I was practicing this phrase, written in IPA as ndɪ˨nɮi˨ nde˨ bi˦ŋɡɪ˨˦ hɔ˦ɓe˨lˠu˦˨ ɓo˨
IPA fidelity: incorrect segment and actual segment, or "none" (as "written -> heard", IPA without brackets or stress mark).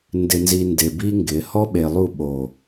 ɮ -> z